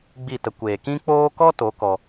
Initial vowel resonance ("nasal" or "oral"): oral